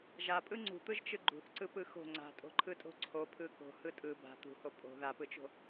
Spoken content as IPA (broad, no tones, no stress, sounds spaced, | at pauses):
ʒ a pʼ ɯ ŋ͡ǀ ṳ t̪ ɯ ʒ t͡ʃ ɯ ɡ͡ǃ ṳ θ ǀ ɯ p ɯ x o̤ ŋ͡ǀ a̤ tʼ o̤ ǃʰ ɯ tʼ o̤ ǀʰ o pʰ ɯ k o̤ h ɯ tʼ ɯ b a̤ t̪ ṳ h o pʼ o̤ ð a p ɯ t͡ʃ o̤